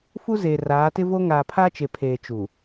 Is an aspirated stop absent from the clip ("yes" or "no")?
no